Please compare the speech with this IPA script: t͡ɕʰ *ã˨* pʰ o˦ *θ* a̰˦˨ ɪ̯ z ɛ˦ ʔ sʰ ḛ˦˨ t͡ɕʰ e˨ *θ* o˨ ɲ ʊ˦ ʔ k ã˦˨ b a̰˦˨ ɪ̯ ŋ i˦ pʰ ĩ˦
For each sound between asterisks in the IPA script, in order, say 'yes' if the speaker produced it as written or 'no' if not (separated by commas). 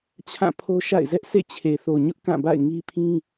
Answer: no, no, yes